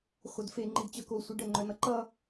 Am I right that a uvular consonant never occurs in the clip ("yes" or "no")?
no